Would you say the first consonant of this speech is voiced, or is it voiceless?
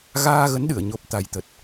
voiced